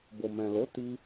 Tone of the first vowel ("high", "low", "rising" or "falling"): low